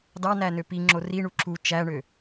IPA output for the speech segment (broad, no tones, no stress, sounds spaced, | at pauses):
d ɑ n æ n ø p i ŋ͡ǁ o r i ɳ u ǁ u t͡ʃ æ ɳ ø